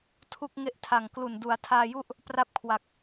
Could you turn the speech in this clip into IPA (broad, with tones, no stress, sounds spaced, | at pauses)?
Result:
tʰ u˥˩ k̚ ŋ e˦˥ ʔ tʰ a˨˩ ŋ k l u˨˩ n d u˩˦ a̯ tʰ aː˧ j u˥˩ ʔ | p r a˥˩ p̚ kʰ w a˨˩ k̚